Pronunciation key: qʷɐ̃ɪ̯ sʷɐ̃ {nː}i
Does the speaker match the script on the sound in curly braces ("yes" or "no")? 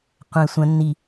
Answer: yes